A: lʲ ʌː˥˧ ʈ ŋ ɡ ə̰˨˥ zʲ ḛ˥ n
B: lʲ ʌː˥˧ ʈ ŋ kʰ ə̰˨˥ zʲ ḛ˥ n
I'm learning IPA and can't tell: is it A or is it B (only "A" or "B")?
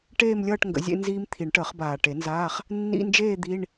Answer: A